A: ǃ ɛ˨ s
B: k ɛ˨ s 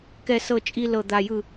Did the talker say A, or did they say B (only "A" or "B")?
B